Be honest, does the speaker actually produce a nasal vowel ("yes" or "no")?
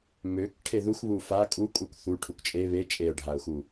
no